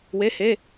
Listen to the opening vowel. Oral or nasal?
oral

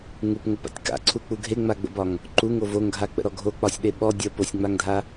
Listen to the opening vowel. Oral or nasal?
oral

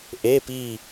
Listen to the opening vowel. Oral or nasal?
oral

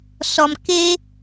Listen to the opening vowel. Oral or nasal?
oral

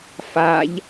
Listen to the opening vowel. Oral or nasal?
oral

